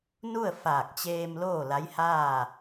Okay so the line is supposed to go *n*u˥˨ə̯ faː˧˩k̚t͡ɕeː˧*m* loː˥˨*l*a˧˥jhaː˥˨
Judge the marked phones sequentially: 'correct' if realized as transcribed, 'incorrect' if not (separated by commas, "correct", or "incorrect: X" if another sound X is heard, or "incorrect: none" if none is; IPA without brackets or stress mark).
correct, correct, correct